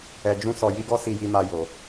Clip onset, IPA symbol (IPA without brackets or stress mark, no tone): ɛ